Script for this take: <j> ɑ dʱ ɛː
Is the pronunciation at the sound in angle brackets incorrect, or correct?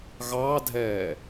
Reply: incorrect: ɣ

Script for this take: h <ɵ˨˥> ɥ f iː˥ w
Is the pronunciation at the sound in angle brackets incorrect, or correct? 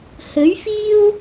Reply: correct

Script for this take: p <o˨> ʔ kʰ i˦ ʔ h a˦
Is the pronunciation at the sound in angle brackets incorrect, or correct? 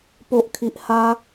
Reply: incorrect: o˦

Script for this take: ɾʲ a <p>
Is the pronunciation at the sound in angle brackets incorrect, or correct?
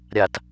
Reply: incorrect: t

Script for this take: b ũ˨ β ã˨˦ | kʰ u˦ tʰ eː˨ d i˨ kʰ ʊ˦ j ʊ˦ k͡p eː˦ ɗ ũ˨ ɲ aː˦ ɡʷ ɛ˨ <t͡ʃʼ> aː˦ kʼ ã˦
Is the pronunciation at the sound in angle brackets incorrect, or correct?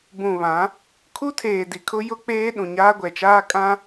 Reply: incorrect: t͡ʃ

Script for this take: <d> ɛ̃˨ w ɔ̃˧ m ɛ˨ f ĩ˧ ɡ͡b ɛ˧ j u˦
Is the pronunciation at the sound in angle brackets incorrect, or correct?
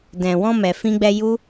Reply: correct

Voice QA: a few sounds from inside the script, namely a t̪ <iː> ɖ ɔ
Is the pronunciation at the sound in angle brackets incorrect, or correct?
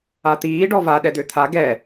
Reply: correct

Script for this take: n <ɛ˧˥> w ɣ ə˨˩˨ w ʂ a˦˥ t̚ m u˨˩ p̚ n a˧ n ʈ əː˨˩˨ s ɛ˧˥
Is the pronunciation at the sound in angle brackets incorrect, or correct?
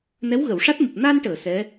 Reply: correct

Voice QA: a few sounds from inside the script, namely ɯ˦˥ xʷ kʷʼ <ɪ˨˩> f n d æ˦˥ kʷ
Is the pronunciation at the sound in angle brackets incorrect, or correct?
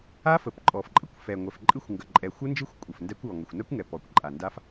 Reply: incorrect: ə˨˩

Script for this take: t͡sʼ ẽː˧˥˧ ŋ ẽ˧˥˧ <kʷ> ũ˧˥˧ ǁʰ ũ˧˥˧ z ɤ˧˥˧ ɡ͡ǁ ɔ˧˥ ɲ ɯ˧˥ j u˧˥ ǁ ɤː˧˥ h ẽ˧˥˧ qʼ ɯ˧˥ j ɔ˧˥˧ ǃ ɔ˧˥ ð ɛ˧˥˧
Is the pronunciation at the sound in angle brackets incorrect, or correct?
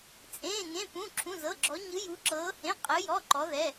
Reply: incorrect: p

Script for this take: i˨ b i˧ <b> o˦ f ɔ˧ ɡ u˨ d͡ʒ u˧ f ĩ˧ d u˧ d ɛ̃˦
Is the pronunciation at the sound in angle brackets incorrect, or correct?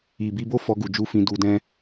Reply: correct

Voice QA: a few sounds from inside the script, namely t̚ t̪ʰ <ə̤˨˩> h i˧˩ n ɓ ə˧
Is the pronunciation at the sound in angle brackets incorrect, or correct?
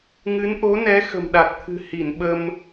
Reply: incorrect: ɨ̤˨˩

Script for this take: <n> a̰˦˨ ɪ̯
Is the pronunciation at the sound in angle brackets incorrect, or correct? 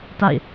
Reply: incorrect: t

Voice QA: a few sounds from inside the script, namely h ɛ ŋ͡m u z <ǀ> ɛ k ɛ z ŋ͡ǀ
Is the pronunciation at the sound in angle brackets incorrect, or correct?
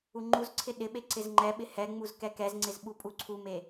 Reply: incorrect: k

